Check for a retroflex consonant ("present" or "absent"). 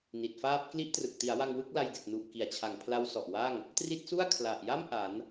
absent